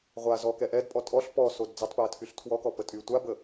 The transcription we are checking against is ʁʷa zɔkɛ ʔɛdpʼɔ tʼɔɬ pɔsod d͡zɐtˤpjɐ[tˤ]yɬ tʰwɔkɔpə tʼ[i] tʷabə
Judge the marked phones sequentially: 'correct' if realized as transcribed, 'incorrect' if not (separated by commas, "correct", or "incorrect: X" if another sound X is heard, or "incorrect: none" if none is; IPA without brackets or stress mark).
incorrect: tʰ, incorrect: y